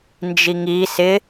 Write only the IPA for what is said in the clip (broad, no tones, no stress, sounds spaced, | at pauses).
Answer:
n d͡ʒ i ŋ i s ɪ